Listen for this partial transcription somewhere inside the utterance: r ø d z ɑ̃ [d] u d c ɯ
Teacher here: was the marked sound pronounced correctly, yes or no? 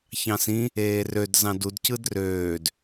yes